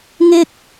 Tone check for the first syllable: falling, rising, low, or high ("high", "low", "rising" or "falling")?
high